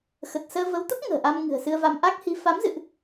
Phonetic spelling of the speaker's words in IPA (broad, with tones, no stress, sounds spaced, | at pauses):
x ə˨˩ t̚ s əː˧ v ə˨˦ w t̪ ə˦˥ p̚ ŋ ə̤ː˨˩ ʔ a˧ m ŋ ɨ̤˨˩ ə̯ s ɨ˧ ə̯ v a˧ m ʔ a˦˥ k̚ h i˨˦ f a˨˦ m z ɨ̰˧˨ ʔ